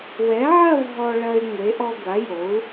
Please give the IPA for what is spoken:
w ɛ˩˥ ʕ ɐ˥˧ v ɦ ɔ˧ ɭ ɐ˧ y̯ ŋʷ e˩˥ ʔ ɔ˧ ɡʷ a˩˥ j o˩˥ u̯

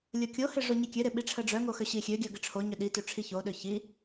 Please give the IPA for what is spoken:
lʲ o kʲ o h ɪ ʐ o ɲ i kʲ ø ɾ ɪ ɓ i ʈ͡ʂʰ ə ɖ͡ʐ œ ŋ o x ø ɕ i xʲ ø ɡʲ œ ɡ ɪ ʈ͡ʂʰ o ɲ ø ɗ i t ø ʈ͡ʂʰ i ç o ɗ ø ç i

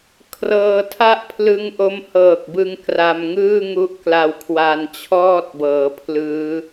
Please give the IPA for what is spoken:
kʰ r ɤː˧ tʰ a˥˩ ʔ pʰ l ɯ˦˥ ŋ ʔ o˦˥ m h ɤː˨˩ k̚ b ɯ˧ ŋ k r a˧ m ŋ ɯː˥˩ ŋ u˦˥ ʔ k l a˧ w kʰ w a˧ n t͡ɕʰ ɔː˥˩ t̚ b ɤː˩˦ pʰ l ɯː˦˥

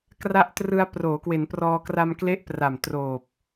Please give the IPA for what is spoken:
k r a˦˥ ʔ t r ɯ˧ a̯ p r oː˩˦ k w e˩˦ n p r ɔː˧ k r a˧ m k l e˦˥ ʔ p r a˨˩ m t r oː˨˩ p̚

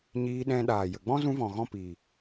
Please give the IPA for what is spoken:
ɲ iː˧ ɗ ɛ̃˧ ɗ aː˨ j ə˨ ɡ͡b ɔ̃˦ z ũ˧ v ɔ̃˨ ɣ ɔ̃˦˨ p iː˨

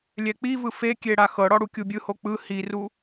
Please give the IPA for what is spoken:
lʲ ɛ k͡p i v ɯ f e kʲ e ɽ a x ɤ ɽ ɔ ɽ u kʲ u bʲ ɯ h o k͡p ɯ h i r u

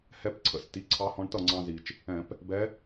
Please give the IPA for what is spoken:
h ɛ˧˥ p ǀʰ ə̰˧˩˧ s t i˩˧˩ ǀʰ ɑ˧˥ h ɔ̃˧ ɳ t ʌ˥˩ ŋ͡ǀ ɑ̃˧ z i˩ t͡ʃ | ɛ̃˧˩˧ p | b ɛ˧˥

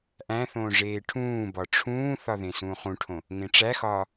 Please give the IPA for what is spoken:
ʔ æ̃ θ õː ʐ eː ʈʰ ũː b ɒ ʈ͡ʂʰ ũː θ ɒ ð ẽ s ũː χ ũ ʈʰ õ | ŋ ẽ ʈ͡ʂ æ x ɒː

